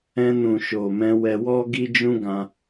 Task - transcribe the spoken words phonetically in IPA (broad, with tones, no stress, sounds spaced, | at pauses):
ɛ̃˧ n ũ˨ ʃ o˨ m ɛ̃˧ w ɛ˧ w ɔ˦ ɡ i˦ d͡ʒ ũ˦ ɡ ã˧